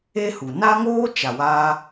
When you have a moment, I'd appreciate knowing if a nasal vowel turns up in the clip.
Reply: no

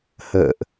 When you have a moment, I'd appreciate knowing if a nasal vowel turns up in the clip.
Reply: no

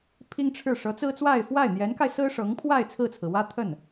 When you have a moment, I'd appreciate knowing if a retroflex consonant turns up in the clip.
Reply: yes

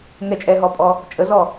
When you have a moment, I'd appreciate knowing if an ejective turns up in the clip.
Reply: yes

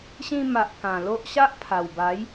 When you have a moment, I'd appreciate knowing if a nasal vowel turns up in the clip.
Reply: yes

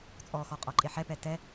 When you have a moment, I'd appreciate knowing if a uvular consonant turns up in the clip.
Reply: yes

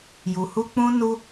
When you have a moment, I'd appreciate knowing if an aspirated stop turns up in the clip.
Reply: no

